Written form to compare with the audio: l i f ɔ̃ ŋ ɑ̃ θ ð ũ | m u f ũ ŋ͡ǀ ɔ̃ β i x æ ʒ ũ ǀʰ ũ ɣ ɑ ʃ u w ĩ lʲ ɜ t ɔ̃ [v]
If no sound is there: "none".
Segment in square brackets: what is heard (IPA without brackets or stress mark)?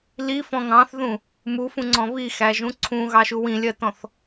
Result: θ